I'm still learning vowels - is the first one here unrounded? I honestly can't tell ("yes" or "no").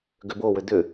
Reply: no